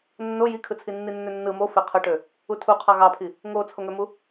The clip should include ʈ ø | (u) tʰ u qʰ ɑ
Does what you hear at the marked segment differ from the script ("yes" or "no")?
no